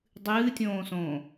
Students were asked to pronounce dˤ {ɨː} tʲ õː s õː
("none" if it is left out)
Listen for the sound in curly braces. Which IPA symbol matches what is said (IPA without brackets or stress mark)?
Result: ɨː